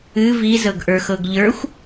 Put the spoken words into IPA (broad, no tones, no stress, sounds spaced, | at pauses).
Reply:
ɨ v i z ɤ ɡ ʔ ə˞ x ɤ ɡ ʎ ə˞ xʷ